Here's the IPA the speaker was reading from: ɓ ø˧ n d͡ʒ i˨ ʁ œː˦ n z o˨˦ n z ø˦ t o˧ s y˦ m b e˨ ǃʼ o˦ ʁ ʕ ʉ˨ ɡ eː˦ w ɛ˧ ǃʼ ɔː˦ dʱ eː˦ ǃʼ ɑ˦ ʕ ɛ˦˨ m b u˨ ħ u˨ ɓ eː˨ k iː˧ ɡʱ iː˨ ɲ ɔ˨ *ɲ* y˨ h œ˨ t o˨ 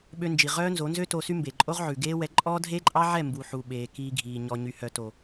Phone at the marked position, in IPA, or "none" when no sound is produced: ɲ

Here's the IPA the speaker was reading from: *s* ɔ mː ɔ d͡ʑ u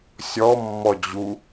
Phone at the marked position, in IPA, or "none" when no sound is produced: sʲ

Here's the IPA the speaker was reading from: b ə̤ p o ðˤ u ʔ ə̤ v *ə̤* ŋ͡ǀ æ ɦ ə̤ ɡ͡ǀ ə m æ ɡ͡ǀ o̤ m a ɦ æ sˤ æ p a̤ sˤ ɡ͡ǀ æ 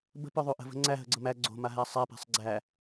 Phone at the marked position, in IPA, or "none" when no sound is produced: ə̤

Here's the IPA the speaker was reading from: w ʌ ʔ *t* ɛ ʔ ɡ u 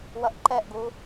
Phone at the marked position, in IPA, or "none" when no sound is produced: ǃ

